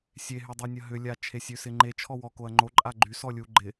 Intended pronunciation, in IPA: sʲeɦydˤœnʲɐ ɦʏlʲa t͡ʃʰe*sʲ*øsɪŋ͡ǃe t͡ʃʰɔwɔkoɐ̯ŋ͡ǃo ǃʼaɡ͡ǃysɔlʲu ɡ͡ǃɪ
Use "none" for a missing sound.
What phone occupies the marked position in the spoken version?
sʲ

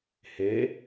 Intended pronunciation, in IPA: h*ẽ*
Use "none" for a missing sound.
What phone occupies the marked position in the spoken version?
e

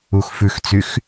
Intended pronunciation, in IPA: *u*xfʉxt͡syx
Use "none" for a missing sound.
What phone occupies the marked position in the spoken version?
u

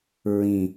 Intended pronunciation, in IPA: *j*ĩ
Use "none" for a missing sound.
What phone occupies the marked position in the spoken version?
ɹ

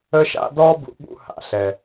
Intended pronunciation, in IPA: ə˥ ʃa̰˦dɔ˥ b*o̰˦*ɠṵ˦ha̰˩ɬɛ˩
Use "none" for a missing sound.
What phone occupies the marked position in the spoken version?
ṵ˦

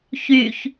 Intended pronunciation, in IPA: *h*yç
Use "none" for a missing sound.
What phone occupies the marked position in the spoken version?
ç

